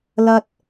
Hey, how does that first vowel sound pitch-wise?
high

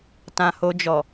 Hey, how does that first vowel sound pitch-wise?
low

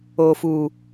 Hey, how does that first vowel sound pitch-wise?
low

